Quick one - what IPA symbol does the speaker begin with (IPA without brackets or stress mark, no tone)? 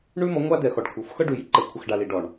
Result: ɳ